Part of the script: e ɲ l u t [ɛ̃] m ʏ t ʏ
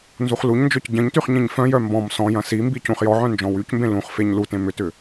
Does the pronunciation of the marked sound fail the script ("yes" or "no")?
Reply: yes